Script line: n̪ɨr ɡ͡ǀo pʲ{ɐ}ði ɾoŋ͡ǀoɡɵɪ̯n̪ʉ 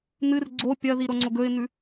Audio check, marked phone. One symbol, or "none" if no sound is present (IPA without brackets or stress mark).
ɐ